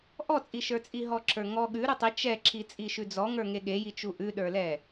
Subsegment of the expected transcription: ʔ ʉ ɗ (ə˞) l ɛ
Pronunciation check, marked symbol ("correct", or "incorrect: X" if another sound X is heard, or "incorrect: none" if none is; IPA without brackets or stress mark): correct